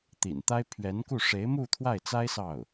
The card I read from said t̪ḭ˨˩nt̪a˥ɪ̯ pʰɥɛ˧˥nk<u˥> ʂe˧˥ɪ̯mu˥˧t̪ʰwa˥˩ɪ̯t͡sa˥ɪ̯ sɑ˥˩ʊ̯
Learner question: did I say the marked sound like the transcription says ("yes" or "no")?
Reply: no